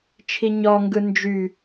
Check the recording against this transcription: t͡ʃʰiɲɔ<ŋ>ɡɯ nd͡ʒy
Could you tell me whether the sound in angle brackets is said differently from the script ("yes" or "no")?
no